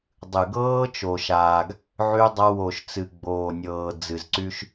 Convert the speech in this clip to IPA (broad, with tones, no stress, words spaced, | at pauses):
dˤɨ˨ ɡɤː˦t͡ʃo˨ ʃaː˨ɡ | ʕy˦dˤa˦ wo˨ʃ t͡sɨ˨ɡ͡boː˨nʲɤː˨ d͡zɨ˨zǀy˦ʃ